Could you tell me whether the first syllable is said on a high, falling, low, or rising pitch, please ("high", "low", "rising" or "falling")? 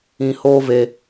low